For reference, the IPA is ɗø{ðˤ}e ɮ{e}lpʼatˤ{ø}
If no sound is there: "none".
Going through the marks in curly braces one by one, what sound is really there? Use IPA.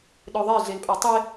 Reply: ðˤ, e, e

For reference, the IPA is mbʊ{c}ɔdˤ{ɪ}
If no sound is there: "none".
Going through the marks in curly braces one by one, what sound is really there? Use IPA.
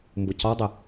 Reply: c, ɪ

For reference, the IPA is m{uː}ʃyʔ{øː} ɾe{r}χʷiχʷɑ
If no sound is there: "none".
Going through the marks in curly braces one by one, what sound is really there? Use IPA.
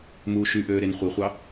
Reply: uː, øː, n

